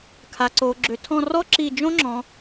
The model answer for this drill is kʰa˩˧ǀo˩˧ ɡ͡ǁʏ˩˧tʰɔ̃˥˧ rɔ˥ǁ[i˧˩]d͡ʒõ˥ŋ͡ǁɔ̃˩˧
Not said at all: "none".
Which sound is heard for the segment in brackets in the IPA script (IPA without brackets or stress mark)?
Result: i˧˩